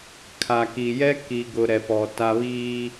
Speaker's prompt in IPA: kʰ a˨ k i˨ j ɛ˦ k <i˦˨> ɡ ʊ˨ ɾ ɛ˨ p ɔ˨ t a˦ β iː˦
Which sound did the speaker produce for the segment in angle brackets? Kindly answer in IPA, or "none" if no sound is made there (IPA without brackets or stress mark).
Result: i˨